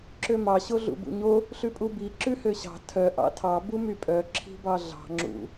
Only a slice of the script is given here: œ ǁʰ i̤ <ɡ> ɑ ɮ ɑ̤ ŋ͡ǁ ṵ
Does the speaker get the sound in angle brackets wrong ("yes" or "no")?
yes